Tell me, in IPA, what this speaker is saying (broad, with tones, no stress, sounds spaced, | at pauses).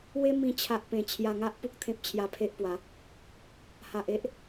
w e˦ m ĩ˧ t͡ɕʰ a˦ ʔ p ẽ˧ t͡ɕʰ j a˧ ŋ a˦ ʔ p u˦ k̚ t̪ʰ ẽ˦ p̚ t͡ɕʰ j a˧ pʰ e˦ ʔ p w a˨˦ | h a˨ ʔ e˦ ʔ